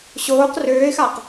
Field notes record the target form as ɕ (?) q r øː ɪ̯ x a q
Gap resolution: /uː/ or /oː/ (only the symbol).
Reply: oː